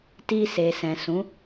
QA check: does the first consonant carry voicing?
no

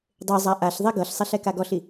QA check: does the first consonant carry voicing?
yes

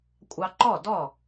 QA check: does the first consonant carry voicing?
no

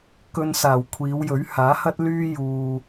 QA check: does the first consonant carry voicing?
no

